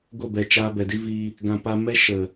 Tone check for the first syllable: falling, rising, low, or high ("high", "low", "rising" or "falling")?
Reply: falling